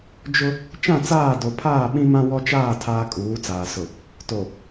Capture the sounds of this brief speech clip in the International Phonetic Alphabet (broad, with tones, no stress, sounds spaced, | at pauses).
d͡ʒ ʊ˦ | t͡ʃ ã˦˨ t͡s aː˦˨ d o˨ pʰ aː˦˨ ɓ ĩ˦ m ã˦ w ɔ˦ t͡ʃ aː˦˨ tʰ aː˦ kʼ uː˨˦ t͡s aː˨ s ʊ˨ | t o˨